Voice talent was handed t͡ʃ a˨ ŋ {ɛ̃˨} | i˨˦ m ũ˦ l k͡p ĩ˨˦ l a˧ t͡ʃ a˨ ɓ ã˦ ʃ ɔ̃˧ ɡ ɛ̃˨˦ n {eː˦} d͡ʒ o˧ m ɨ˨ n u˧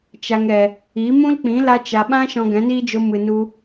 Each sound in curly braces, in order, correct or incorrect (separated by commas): incorrect, incorrect